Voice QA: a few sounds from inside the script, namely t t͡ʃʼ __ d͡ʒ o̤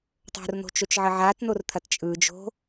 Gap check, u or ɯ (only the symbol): ɯ